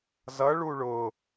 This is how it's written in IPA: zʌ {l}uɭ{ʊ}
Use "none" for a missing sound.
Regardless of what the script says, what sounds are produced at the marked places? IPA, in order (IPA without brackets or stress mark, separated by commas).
ɭ, ʊ